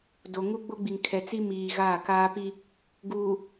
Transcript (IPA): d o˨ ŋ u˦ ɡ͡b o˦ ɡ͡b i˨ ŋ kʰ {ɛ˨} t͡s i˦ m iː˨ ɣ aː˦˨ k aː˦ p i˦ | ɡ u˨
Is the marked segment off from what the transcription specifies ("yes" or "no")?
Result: no